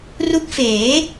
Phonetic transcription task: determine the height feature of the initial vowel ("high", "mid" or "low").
high